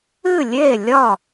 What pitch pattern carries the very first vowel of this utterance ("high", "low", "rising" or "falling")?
falling